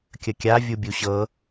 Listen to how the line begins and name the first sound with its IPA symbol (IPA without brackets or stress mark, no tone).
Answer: kʲ